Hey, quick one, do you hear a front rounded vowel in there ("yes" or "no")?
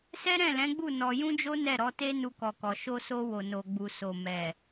no